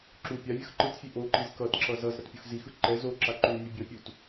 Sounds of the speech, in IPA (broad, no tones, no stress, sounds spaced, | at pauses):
ǁ u pʲ a vʲ ʌ x ǃ ɯ tʲ fʲ e ʔ o ǃ i z k ʌ t ǁ ʌ z ʌ z ɾ ʌ t pʲ u x z i x ɯ ǃ ɛ z o ǁ a ǃ u nʲ ɯ bʲ ʌ pʲ u t